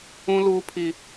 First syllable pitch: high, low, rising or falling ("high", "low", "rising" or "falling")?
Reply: high